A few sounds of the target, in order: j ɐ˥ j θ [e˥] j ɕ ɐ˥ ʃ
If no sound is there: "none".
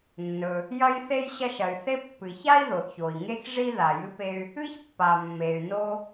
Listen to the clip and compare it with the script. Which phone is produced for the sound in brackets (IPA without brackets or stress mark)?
e˥